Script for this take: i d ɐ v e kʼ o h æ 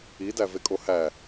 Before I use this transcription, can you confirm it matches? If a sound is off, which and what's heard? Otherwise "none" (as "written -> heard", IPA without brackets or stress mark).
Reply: ɐ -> æ